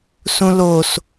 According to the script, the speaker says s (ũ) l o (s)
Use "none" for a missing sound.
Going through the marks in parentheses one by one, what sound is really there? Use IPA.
ũ, s

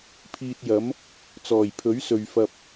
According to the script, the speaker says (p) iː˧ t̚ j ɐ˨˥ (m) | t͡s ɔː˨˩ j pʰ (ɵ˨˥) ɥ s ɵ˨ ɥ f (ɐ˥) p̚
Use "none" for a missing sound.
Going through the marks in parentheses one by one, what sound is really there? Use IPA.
pʰ, m, ɵ˨˥, ɐ˧

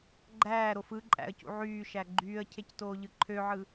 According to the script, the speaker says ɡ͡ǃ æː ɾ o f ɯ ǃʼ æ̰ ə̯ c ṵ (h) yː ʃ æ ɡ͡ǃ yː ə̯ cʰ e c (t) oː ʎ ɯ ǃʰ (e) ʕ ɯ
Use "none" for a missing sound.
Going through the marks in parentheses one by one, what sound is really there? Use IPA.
ʕ, t, ø

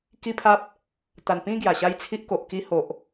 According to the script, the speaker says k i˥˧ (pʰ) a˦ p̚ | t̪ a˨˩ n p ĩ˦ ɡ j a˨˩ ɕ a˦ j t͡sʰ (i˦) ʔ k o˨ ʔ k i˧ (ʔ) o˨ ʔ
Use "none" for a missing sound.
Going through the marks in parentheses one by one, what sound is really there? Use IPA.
pʰ, i˦, h

